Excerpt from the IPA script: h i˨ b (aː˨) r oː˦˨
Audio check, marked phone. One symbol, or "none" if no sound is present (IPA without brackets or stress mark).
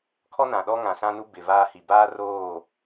aː˦